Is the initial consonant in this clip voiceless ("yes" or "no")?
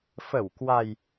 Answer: yes